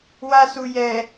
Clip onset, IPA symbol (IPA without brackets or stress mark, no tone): w